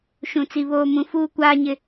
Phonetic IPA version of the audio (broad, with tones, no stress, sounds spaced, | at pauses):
ʃ ũ˨ t͡s i˨ β oː˨ m ũ˨ f uː˨ kʷ aː˨ ɲ ɪ˨